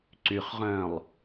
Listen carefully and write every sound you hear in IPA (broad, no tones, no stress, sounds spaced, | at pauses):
ǀ y χ ʁ œ̃ː lˠ